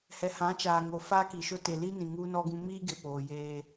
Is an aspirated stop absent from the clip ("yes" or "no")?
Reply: yes